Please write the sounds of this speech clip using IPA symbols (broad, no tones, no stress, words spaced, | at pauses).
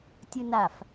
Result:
tʲɯnaf